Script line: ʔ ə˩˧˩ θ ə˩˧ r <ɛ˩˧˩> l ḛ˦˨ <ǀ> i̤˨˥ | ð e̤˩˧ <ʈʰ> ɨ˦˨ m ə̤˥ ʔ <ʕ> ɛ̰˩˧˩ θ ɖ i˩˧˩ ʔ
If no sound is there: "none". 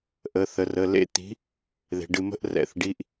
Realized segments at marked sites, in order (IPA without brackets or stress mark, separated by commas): ə˩˧˩, t̪, ɖ, r